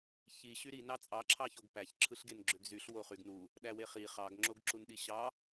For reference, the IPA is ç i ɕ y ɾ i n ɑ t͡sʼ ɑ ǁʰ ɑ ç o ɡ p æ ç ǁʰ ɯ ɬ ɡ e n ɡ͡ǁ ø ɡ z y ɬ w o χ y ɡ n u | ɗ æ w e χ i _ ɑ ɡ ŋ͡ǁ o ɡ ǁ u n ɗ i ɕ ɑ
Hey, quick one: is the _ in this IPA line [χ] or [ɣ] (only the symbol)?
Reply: χ